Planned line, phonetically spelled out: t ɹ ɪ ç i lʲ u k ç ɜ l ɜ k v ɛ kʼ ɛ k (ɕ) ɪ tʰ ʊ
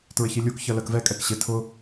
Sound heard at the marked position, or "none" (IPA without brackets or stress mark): ɕ